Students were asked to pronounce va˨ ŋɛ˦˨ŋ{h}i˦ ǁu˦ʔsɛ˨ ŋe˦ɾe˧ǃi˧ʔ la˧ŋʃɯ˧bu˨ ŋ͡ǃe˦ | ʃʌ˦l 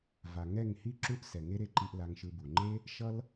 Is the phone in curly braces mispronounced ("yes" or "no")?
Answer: no